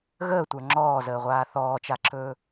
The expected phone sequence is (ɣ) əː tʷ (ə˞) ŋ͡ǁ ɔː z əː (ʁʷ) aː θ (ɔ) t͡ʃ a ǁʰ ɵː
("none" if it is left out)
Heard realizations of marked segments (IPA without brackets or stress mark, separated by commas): ɣ, ə˞, ʁʷ, ɔː